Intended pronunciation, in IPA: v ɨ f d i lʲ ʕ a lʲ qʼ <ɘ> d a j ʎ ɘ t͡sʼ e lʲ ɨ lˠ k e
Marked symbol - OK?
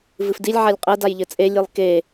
no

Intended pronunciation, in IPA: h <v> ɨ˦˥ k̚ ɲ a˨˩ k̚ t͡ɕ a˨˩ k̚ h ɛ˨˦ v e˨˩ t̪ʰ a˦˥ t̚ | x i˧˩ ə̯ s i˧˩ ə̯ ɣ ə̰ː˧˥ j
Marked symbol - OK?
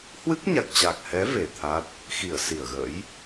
no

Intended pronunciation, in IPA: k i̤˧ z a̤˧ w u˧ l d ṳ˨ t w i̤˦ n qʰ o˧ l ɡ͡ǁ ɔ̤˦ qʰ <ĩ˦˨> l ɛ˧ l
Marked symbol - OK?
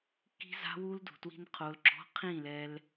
yes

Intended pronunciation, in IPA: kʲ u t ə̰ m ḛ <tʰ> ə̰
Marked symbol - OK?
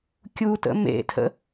yes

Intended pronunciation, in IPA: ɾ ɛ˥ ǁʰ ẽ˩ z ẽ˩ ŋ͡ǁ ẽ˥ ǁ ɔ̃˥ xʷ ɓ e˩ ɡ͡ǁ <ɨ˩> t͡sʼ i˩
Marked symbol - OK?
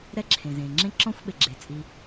no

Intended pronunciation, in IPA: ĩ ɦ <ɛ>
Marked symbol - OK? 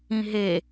no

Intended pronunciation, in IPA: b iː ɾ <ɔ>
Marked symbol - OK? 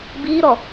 yes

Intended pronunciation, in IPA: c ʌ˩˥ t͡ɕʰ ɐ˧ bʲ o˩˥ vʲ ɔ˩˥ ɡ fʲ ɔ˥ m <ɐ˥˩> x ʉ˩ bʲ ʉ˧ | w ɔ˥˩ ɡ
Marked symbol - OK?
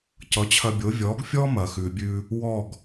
no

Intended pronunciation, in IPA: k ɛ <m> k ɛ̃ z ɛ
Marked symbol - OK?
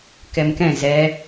yes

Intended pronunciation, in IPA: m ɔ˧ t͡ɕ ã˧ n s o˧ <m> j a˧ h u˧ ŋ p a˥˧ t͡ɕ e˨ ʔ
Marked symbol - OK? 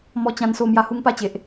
yes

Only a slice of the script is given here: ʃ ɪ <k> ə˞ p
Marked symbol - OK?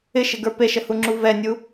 no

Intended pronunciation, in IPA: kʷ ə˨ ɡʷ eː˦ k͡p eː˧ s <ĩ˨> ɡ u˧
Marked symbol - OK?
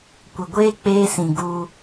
yes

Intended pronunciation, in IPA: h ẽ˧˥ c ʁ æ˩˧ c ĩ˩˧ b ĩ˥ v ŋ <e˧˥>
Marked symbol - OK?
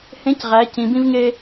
no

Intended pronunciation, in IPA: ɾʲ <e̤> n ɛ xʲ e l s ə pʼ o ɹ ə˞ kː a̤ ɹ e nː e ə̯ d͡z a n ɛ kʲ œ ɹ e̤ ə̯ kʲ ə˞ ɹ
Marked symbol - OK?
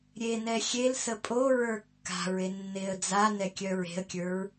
no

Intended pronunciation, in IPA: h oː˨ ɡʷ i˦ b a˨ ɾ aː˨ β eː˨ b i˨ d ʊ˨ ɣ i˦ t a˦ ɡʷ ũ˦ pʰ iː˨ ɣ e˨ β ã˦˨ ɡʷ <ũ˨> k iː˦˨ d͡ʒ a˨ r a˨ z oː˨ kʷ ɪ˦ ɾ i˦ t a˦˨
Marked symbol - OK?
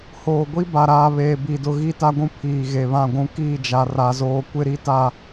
no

